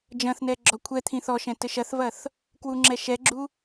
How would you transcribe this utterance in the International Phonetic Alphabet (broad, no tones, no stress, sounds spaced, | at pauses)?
d͡ʒ ɐ̃ θ n ɛ ɡ͡ǁ ɔ kʷʰ ɛ t̪ʰ ĩ θ ɔ ʃ ɛ̃ t ɘ ʃ ɐ θ v ɐ θ | k w u ŋ͡ǁ ɛ ʃ ɛ ɡ͡ǁ u